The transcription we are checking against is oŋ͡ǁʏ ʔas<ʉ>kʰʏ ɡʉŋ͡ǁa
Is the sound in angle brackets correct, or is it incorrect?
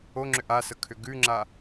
incorrect: ə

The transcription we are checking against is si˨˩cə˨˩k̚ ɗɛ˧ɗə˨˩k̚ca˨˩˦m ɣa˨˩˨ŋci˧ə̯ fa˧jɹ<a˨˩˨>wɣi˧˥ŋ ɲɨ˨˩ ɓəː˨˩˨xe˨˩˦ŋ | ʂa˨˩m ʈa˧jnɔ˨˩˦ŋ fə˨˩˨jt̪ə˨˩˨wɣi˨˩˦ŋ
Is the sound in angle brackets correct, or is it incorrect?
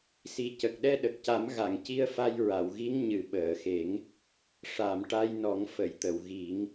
correct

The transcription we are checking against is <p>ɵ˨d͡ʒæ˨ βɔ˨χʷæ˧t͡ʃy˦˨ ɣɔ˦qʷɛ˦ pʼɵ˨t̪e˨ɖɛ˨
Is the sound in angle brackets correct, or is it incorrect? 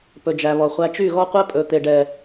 correct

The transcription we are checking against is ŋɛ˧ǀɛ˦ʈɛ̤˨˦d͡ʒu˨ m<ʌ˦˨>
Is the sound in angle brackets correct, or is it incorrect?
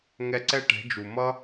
incorrect: ʌ˦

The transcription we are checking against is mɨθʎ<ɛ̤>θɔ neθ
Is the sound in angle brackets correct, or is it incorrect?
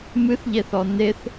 incorrect: ɛ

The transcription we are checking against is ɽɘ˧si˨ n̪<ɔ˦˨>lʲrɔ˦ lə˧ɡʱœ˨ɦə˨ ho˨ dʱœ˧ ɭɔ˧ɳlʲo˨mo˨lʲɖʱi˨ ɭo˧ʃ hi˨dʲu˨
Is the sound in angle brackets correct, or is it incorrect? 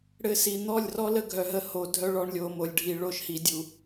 correct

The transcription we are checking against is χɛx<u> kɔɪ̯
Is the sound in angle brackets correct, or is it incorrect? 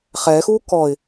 correct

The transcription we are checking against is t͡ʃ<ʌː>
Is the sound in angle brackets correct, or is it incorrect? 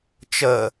incorrect: əː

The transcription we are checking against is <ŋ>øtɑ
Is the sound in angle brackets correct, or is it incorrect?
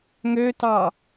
correct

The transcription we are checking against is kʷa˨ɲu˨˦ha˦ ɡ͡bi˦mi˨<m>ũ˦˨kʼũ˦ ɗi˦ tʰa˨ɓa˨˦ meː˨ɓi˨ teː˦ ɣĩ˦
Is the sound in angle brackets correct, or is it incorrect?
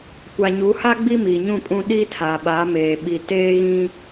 incorrect: ɲ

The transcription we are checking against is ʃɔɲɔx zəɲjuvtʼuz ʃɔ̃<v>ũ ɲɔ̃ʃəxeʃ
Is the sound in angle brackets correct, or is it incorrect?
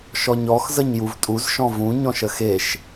correct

